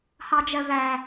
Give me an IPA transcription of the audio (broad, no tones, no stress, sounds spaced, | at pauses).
h ɑ d͡ʒ ɜ v æ